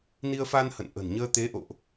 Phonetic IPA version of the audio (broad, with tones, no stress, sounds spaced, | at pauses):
n i˧ ə̯ f a˧ n h ə̰˧˨ n ʔ ə̤˨˩ n ɲ əː˧ t̪ e˨˦ ʔ o̰˧˨ ʔ